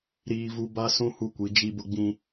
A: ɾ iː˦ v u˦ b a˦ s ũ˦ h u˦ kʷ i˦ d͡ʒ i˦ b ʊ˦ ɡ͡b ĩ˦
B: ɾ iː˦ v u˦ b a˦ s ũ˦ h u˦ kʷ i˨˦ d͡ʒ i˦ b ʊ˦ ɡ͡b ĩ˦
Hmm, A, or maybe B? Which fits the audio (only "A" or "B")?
B